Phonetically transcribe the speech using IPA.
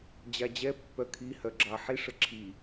d͡ʑad͡ʑɛpːœ kʰihœ ɡ͡ǁɑħi ʂəǁʰi

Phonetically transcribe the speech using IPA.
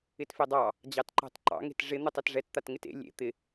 ɪtfedˤɑ | d͡ʑɑtǃɑ̤tǃɑ̰ ŋe̤tʐɪ n̪ɨtˤɛtʐɛt t̪atŋɪtḛ lʲḛ t̪ɪ

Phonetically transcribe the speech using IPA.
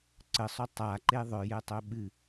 ǀəsˤo tˤaǃe ðˤœjɛtˤœ ɓɨ

